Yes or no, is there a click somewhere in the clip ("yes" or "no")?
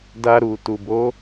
no